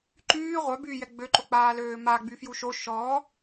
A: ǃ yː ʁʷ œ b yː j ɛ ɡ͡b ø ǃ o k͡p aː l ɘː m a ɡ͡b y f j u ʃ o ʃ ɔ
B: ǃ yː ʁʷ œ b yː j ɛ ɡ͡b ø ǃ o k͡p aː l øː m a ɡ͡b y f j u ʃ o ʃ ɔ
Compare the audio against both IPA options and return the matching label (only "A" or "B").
B